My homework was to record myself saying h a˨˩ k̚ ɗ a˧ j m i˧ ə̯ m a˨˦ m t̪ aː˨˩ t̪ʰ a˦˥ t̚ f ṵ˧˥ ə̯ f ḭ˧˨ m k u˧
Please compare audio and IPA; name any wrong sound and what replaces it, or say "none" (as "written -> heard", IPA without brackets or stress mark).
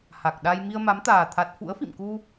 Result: none